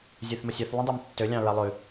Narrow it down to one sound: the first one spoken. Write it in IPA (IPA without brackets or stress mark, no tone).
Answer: zʲ